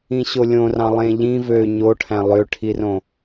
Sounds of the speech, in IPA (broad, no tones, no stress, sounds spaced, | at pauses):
ĩ ɕ o lʲ õ r ɑ̃ lˠ ẽ ʎ ĩ v ø ɲ o ʈʰ æ̃ lˠ ø ʈʰ i r õ